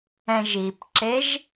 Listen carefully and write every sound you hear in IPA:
ɛ̃ ʒ i p ǁ e ʒ

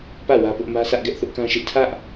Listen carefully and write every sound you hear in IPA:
p ä˦˨ w ä˦ p ʊ˦ ʔ m ä˦ sʰ ä˦ ʔ ɡ ɛ˦ ʔ θ ʊ˦ ʔ k ã˦ ʃ ɪ˦ ʔ tʰ ä˦ ʔ

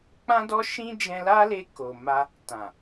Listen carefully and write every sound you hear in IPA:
k͡p ã˦ d ɔ˦ ʃ ĩ˦ d͡ʒ ɛ̃˧ l a˦ l e˧ k o˨ m a˧ | t ã˨

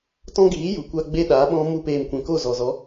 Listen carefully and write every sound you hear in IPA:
t ɔ̃˦ ɡ iː˨˦ j u˨ kʷ a˦ ɡ͡b e˦ ɗ aː˨˦ ɓ ɔ̃˦ m u˦ p eː˧ m kʷ ɛ̃˨ k o˦˨ z ɔ˨ z ɔ˨˦

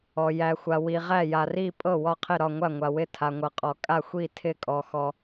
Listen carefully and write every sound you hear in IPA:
ɔ˩ j æ˩ xʷ a˩ w i˩ ʁ æ˧˩ j a˩ r i˧˩ pʼ ɤ˧˩ w ɒ˧˩ qʰ ɪ˧˩ ɾ ɒ˧˩ ŋʷ a˧˩ ŋʷ a˩ w ɪ˧˩ tʰ a˩ ŋʷ ɤ˩ qʼ ɔ˩ kʼ a˧˩ xʷ i˧˩ tʰ ɪ˧˩ kʼ ɔ˩ x ɔ˩

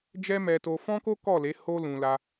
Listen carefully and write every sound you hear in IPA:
d͡ʒ ɛ˦ m ɛ˧ t o˧ f ɔ̃˦ k o˦ k ɔ˦˨ l e˨˦ h o˦ l ũ˧ l a˧

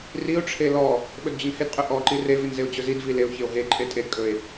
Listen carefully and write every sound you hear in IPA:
r i o̯ ʈ͡ʂʰ e l ɔ | ɓ ɵ d d͡ʑ ɵ n h e d qʼ ɵ ʔ ɔ ǃ i r e v i n z e o̯ d͡ʑ ɵ z i d v i l e o̯ ç e o̯ ɦ e ǃʼ e tʼ e d kʼ ɵ e̯

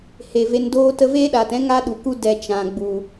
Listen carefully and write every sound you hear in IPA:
h e˨ v e˧ n d oː˦ t ə˧ v eː˦ ɗ aː˨ t ɛ̃˦ ŋ a˦ ɗ u˨ k u˦ d ɛ˧ t͡ʃ ã˨ ɡ͡b u˨

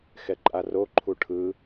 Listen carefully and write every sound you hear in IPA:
x ɛ ǃʼ a r o ǃʰ u ʈʰ ɯ

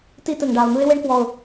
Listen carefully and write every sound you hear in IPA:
t i˧ t ɯ˩ ŋ ɖ a˩ ʊ̯ n̪ ɯ˧ ɪ̯ w e˥ ɳ k w ɔ˩ ʊ̯

